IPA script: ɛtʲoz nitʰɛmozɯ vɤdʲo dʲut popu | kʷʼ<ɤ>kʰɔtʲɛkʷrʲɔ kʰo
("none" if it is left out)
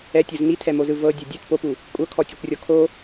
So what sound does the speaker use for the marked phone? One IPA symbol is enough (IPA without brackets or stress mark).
ɤ